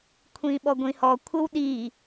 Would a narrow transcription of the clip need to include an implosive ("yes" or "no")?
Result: yes